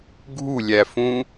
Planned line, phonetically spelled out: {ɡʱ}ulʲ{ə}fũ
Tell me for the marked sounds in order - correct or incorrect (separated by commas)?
correct, incorrect